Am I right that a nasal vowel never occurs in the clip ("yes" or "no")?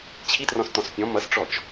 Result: no